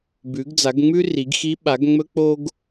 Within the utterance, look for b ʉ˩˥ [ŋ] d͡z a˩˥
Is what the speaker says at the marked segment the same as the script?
no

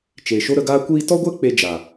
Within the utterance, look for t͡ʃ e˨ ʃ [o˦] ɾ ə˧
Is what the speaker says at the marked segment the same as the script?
yes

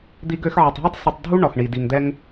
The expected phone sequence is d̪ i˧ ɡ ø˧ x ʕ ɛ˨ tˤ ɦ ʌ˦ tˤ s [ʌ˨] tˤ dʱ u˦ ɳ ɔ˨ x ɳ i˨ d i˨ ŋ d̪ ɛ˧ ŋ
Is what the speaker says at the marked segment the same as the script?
no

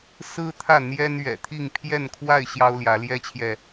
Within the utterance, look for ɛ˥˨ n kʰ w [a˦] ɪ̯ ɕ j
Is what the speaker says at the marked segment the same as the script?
no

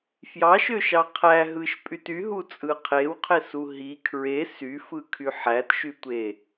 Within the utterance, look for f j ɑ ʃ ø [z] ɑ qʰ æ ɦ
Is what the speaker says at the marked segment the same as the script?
no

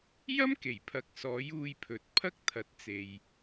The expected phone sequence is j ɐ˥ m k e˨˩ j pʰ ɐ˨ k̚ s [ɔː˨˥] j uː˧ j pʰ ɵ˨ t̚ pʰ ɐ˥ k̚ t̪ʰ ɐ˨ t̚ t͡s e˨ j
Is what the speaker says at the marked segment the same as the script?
yes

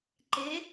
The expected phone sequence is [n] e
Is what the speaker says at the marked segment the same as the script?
no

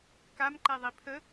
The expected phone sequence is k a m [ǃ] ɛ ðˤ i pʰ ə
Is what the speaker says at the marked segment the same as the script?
yes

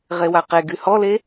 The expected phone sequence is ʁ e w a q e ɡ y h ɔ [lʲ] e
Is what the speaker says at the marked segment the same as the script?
no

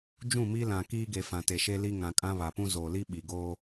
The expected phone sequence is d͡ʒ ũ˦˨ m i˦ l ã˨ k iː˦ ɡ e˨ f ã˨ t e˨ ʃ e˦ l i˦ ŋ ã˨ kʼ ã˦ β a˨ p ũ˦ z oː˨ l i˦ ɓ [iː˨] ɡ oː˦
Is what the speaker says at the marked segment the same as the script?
no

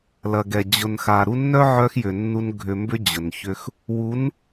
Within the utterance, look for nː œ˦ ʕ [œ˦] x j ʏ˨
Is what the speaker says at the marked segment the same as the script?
no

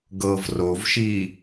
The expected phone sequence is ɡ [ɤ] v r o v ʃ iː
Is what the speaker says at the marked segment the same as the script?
yes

